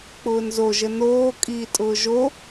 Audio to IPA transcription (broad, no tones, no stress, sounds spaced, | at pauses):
k͡p ʊː n z o ʒ ə n oː kʼ iː tʼ ʊː ʒ o